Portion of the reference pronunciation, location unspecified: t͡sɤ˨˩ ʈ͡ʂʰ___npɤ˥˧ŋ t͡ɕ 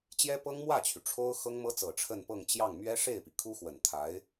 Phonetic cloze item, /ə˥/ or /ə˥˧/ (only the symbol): ə˥˧